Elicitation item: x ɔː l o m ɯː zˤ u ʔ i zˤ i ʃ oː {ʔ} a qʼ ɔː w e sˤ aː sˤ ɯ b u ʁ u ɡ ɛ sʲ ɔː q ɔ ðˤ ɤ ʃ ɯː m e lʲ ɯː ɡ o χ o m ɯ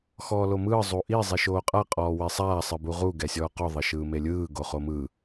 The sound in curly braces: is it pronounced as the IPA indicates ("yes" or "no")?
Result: no